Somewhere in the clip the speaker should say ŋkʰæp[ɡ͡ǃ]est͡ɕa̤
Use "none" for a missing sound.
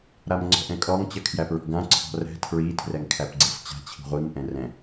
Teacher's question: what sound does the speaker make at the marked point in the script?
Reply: ɡ͡ǀ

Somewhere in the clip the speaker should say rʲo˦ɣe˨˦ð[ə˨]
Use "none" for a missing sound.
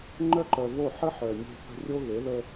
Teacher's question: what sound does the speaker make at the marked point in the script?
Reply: ə˦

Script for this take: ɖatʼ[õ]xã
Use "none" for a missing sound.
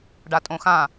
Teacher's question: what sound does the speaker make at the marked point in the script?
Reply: õ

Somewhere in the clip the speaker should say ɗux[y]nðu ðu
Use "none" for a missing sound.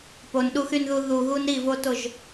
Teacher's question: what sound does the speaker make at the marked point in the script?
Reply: y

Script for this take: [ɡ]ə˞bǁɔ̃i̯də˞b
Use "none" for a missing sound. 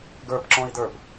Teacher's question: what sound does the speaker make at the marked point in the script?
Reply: ɡ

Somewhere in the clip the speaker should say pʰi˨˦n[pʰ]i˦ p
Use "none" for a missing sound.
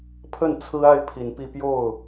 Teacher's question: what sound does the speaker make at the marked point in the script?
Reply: p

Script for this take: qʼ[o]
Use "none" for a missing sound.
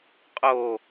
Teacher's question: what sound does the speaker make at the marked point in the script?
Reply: o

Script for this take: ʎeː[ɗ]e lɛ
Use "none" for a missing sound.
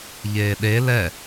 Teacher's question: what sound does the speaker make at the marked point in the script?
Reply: ɗ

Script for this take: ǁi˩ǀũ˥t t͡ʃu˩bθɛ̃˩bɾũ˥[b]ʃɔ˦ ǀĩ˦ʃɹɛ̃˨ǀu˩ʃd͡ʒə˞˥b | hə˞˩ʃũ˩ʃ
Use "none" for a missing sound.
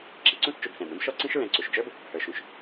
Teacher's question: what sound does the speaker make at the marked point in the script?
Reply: b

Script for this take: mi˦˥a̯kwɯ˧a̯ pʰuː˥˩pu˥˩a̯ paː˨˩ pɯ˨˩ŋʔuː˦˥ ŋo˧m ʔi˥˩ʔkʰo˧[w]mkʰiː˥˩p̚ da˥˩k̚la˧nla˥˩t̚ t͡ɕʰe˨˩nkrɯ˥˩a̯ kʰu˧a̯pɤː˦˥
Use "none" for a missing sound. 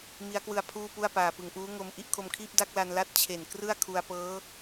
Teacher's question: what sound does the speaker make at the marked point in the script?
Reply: none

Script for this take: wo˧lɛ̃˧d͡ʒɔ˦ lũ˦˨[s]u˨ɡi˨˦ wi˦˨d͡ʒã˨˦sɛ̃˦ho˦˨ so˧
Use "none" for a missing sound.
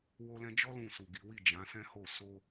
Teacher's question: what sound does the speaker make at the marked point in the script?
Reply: s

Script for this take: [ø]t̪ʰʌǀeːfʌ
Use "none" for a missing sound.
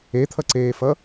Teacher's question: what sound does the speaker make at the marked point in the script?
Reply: e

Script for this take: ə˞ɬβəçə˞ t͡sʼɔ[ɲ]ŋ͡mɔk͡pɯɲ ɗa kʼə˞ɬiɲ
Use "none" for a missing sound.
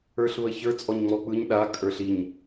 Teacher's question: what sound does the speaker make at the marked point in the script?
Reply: ɲ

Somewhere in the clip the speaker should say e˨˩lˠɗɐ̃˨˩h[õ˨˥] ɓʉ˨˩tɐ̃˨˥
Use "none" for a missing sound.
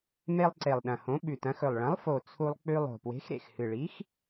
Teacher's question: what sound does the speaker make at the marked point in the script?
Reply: õ˨˥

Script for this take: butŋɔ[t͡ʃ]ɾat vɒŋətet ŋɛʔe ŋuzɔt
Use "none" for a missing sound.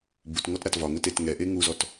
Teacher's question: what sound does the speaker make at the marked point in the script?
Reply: t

